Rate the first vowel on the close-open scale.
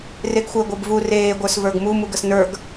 mid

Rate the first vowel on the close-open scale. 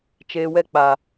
mid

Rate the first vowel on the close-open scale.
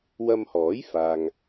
open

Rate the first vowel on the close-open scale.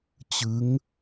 close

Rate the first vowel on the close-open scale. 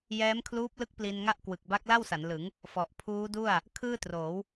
mid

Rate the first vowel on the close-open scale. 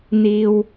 close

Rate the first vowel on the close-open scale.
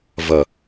open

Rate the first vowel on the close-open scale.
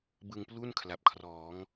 close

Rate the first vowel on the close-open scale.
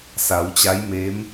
open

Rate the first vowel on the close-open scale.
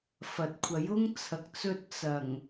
open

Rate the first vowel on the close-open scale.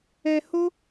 mid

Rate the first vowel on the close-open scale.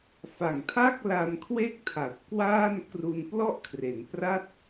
open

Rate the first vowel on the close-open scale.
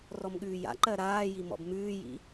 mid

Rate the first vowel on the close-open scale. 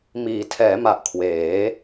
close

